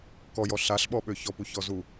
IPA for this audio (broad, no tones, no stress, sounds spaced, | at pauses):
k ɔ j ɔ ɬ a ɬ ɓ ɔ ɓ ø ç ɔ p u ç ɔ z u